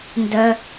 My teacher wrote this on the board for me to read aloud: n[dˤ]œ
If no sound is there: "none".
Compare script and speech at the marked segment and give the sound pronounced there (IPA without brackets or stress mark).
d